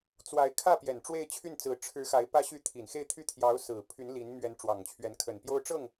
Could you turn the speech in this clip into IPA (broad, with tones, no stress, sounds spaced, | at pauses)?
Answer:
t͡s w a˧˥ ɪ̯ kʰ ä˥˩ p j ɛ˨˩ n ʈ͡ʂ w e˥˧ ɪ̯ t͡ɕʰ y˥˩ n t͡s ɹ̩˧˥ ʈ͡ʂʰ ɻ̩˧˥ x a˧˥ ɪ̯ p ä˥ ɕ y˥˩ t̪ʰ i˨˩ n x e˥˧ ɪ̯ t̪ʰ y˥˩ t̪ʰ j ɑ˧˥ ʊ̯ s ɹ̩˨˩ pʰ y˧˥ n l i˧˥ n m ɥ ɛ˧˥ n ʈ͡ʂ w ɑ˨˩ ŋ t͡ɕʰ ɥ ɛ˧˥ n kʰ ə˨˩ n p j o˥ ʊ̯ ʈ͡ʂ ɤ˥˩ ŋ